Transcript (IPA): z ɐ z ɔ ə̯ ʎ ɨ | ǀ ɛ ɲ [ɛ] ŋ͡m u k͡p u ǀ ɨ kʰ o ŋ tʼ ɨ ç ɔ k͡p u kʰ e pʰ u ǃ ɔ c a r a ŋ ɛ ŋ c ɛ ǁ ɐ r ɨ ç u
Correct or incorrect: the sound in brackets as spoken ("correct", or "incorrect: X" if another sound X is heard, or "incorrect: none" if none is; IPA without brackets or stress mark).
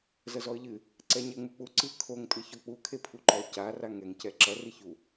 correct